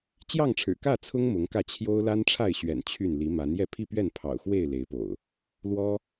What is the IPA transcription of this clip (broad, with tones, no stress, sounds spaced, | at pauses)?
t͡ɕ j ɑ˥˨ ŋ ʈ͡ʂʰ ɻ̩˨˩ k ä˥˨ t͡sʰ ʊ˦ ŋ m ʊ˨˦ ŋ k ä˧ t͡ɕʰ j o˦ ʊ̯ l a˦ n ʈ͡ʂʰ a˥˨ ɪ̯ ɕ ɥ ɛ̰˨˩ n t͡ɕʰ y˥˨ n l i˨˦ m a˨˦ n j ɛ˥˨ pʰ i˥˨ p ɥ ɛ˥˨ n pʰ ɑ̰˨˩ ʊ̯ x w e˥˨ ɪ̯ l e˨˦ ɪ̯ p o̰˨˩ ʊ̯ | l w ɔ˦